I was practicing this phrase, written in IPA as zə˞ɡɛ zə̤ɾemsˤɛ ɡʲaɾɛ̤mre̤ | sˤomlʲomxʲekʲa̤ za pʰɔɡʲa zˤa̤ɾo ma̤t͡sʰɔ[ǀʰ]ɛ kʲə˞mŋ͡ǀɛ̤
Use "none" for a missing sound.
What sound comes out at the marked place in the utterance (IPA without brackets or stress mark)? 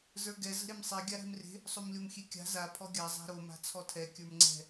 tʰ